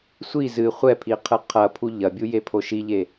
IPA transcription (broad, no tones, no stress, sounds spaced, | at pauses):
sʷ i z ɨ χʷ ɛ pʰ i qʰ ɨ qʰ ɐ pʰ u ʎ ɐ bʲ u j e pʰ o ʃ i ʎ e